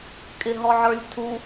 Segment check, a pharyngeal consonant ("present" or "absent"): present